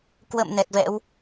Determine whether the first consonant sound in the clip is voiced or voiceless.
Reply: voiceless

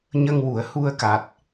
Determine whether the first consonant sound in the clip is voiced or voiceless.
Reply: voiced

